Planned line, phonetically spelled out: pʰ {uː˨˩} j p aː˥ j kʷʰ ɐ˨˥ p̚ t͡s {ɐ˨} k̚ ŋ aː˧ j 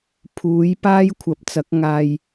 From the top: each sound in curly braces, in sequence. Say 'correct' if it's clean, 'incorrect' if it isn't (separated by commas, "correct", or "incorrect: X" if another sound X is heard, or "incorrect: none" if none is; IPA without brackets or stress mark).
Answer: incorrect: uː˨˧, incorrect: ɐ˨˥